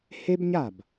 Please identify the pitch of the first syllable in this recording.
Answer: high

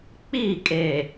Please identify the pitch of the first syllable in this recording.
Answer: falling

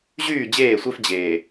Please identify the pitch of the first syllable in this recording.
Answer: falling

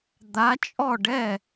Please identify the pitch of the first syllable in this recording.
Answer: rising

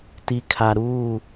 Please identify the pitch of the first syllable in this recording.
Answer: low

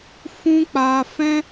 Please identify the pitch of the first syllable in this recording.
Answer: high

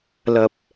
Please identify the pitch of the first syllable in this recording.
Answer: low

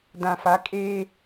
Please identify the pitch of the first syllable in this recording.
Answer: low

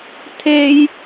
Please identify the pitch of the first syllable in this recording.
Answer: high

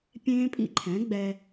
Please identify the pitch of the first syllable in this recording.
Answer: high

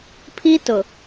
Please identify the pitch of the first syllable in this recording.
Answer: high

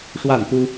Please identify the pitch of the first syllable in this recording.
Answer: falling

